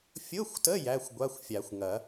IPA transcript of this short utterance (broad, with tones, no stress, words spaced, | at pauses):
fʲʊ˧˥˧xʷtə˧˥˧ jæ˧˥˧xʷɡʷa˧˥˧xʷfʲa˨˩˦xʷŋɐ˨˩˦